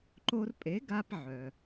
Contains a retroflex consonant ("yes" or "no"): no